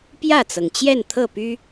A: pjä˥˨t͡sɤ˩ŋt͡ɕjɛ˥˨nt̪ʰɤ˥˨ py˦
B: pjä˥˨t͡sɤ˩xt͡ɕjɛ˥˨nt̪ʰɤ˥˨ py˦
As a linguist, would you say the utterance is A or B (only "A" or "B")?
A